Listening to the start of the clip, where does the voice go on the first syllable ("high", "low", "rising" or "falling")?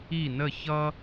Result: falling